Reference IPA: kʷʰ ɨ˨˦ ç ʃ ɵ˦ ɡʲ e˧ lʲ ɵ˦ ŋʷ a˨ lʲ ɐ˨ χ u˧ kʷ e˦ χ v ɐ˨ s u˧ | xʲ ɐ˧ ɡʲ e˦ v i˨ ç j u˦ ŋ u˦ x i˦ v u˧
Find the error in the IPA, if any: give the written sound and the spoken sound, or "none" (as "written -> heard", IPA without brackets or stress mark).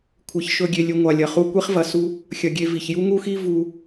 none